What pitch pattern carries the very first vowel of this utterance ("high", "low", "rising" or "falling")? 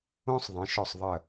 high